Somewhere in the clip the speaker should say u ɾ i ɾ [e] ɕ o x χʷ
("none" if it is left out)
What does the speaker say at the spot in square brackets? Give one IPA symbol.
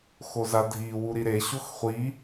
e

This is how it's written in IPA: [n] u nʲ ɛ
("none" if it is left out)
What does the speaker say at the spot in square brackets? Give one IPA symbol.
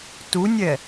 t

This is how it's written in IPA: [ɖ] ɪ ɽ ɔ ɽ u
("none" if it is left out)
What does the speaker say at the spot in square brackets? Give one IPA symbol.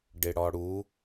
ɖ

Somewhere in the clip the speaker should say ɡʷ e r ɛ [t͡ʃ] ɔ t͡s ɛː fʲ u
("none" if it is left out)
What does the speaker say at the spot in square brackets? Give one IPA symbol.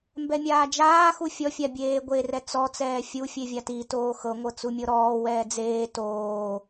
t͡s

